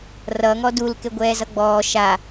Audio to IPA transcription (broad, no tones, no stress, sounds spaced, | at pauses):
r ʌ ŋ ɔ d u l k e ɡʷ ɛː z ʌ ɡ͡b ɔː ʃ a